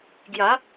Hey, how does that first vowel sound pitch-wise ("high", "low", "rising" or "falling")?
rising